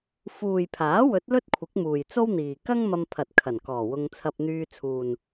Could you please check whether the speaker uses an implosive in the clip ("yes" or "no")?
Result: no